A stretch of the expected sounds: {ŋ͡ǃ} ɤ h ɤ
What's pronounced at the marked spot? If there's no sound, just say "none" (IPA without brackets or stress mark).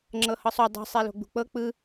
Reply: ŋ͡ǁ